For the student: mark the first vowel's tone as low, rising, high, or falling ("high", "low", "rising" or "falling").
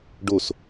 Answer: falling